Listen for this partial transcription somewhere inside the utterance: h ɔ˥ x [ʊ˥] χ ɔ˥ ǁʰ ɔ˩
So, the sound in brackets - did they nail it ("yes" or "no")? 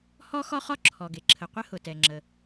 no